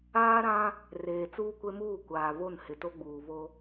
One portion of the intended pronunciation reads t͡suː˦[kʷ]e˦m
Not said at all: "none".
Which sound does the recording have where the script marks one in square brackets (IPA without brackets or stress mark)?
kʷ